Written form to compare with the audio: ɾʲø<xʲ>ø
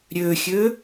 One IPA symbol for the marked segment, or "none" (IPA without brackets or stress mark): xʲ